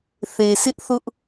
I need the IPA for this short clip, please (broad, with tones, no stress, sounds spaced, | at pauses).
θ e˨ s ɪ˦ ʔ θ ʊ˦ ʔ